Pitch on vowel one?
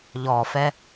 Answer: low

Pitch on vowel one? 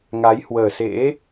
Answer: rising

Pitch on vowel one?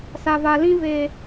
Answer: low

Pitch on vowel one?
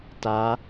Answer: rising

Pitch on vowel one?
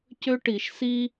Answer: high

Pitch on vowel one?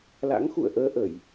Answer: rising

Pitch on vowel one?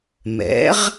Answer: rising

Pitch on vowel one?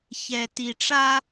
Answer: low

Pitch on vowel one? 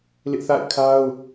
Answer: high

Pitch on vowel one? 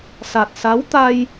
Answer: low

